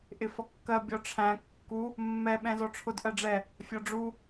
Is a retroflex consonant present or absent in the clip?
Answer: present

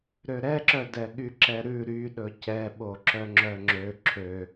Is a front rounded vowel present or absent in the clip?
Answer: present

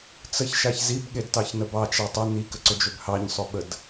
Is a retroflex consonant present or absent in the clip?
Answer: absent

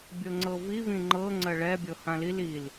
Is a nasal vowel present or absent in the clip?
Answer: present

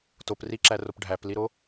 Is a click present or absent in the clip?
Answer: present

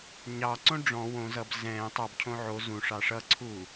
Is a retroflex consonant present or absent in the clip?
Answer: present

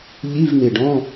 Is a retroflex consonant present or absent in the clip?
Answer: present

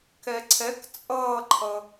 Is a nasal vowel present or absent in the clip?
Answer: absent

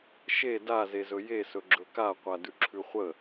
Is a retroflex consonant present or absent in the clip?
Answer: absent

